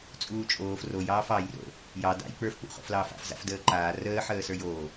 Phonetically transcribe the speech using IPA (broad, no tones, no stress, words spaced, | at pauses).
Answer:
t͡sʼuːt͡ʃʼoːf rojɑːf ɑjro̰ | jɑ da̰j k͡pə˞fk͡pṵ χo̰flɑːfa̰f za̰fdəːǃaː rəːħəː sə˞joː